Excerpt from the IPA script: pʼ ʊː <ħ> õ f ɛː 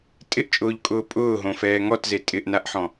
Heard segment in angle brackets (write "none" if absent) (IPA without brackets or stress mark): ɦ